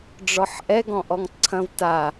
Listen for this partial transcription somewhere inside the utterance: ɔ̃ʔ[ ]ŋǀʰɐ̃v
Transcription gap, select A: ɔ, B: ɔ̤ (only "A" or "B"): A